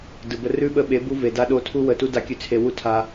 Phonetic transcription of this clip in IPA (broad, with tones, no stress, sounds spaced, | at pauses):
d ɯ˨ b ə˧ r ʉ˦ ɓ ə˧ ɓ e˨˦ b u˧ v e˨ d a˧ ɗ o˧ tʰ u˧ w ə˨ t u˧ d a˧ kʲ ʉ˧ t͡sʰ e˧ w u˦ tʰ a˦